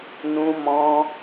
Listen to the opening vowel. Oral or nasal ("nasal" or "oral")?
nasal